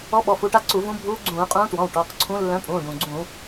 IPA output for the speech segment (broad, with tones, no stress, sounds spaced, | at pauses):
ɔ˧˥ ɓ ɔ˩˧˩ f u˩˧˩ ʈ a˥˧ ǀ u˧˩˧ v ũ˧˥ bʱ uː˧˥ ɡ͡ǀ ũː˧˩˧ qʼ ũː˧˥ t w ɔ̃˩˧˩ w ʈ ɔ˩˧˩ q ǀʰ ũ˧˥ lː œ̃˧˥ pʼ ũː˩˧˩ ɖ ũ˩ ɡ͡ǀ ũ˧˩˧